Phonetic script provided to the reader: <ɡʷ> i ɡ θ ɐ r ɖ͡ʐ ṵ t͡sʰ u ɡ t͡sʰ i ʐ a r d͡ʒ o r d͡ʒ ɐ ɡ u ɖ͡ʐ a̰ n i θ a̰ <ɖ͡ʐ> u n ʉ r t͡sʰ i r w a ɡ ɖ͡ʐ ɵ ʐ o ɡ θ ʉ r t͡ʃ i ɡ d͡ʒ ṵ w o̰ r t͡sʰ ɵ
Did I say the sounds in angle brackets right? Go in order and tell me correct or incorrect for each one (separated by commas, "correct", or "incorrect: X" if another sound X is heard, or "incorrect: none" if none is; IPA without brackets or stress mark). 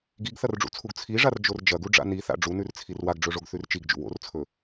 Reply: incorrect: ɡ, correct